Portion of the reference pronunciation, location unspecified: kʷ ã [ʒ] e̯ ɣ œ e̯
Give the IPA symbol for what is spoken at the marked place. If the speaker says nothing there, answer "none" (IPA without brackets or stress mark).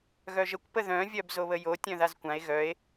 none